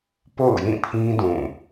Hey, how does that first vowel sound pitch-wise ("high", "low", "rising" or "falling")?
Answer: falling